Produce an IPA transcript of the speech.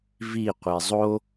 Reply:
v i qʷ e zˤ o

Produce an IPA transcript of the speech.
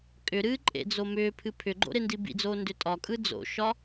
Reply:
kʼ ʏ ɾ ɨː ǃʼ ḛ d͡z o m ʏː pʰ ɨ pʰ ʏ ɡ͡ǃ o̰ ɾ e n d i b ḭ d͡z oː n d ʏ tʼ ɒ kʼ ɯ d͡z o̰ ʃ ɒ

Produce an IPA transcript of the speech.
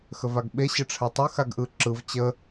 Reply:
x ə v a ɡ ɓ e ɕ ə ʈ͡ʂʰ æ tˤ ɯ x a ɡ ʔ ɯ ǁ ɯ v t͡ɕ ə

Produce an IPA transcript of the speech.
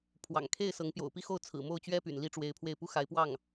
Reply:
pʰ w ɑ̰˨˩ ŋ kʰ e˥˩ ɪ̯ s ɤ˧˥ ŋ p j o̰˨˩ ʊ̯ p i˥ x o˥˩ ʊ̯ t͡sʰ ɹ̩˨˩ m o˥˩ ʊ̯ t͡ɕ ɥ ɛ˥ p y̰˨˩ n l i˥˩ ʈ͡ʂ w e˧˥ ɪ̯ pʰ w e˥˩ ɪ̯ p u˥ x a˧˥ ɪ̯ p w ɑ˥˩ ŋ

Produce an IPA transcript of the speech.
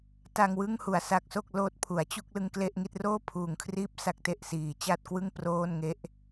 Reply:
t a˧ ŋ w ɯ˥˩ ŋ h u˨˩ a̯ s a˦˥ k̚ s o˥˩ k̚ l oː˦˥ t̚ pʰ u˩˦ a̯ t͡ɕ u˥˩ k̚ l ɯ˧ ŋ k l e˥˩ ʔ ŋ i˥˩ t̚ r oː˥˩ pʰ uː˨˩ ŋ kʰ r iː˦˥ p̚ s a˦˥ k̚ t e˨˩ ʔ s iː˨˩ t͡ɕ a˥˩ t̚ k w ɯ˥˩ ŋ p r oː˥˩ n ŋ e˥˩ ʔ

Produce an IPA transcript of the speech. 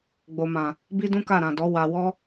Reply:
ɡ͡b o˨ m ã˨ | b i˦ d ũ˦ k a˦˨ ɾ ã˨ d ɔ˨˦ w a˧ w ɔ˦

